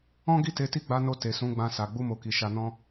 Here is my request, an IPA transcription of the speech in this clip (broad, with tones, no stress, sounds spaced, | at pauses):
ɔ̃˦ ɡ i˦˨ t e˨˦ t i˦˨ ɡ͡b a˨˦ n o˧ t e˨ s ũ˨˦ ɡ͡b ã˧ s a˨ ɡ͡b u˧ m o˨ k i˨ ʃ a˧ n ɔ̃˧